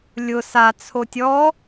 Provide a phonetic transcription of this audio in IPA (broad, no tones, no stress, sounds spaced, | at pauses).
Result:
lʲ ʊ s a t͡sʰ o tʲ ɔ